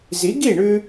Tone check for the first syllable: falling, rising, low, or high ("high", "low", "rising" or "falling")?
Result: rising